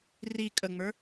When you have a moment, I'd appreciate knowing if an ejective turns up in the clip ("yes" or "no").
yes